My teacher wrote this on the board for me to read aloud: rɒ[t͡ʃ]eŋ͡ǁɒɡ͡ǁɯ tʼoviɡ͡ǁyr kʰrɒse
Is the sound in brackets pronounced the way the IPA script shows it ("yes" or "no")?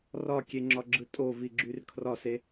no